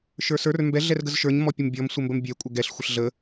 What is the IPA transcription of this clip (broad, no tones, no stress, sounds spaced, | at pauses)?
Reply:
ʃ ə˞ s ə˞ r m b ɛ ɮ ɛ r ɡ ə z ʃ ə˞ ɲ m ɔ pʲ ə m bʲ ɔ m sʷ ə m b ə m bʲ ɛ kʷʼ ə ɡ ɛ ɬ xʷ ə ɬ ɮ ə